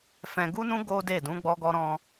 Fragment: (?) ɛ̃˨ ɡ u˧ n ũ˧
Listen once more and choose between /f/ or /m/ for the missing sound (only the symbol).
f